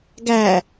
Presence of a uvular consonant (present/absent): absent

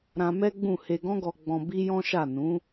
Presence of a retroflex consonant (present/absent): absent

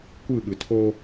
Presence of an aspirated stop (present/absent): present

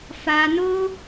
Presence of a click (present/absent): absent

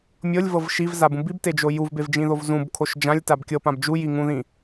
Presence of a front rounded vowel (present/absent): absent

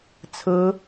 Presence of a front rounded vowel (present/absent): absent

